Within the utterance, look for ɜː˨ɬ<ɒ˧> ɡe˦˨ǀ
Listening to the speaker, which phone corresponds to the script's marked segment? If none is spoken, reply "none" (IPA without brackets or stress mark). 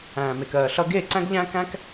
ʌ˧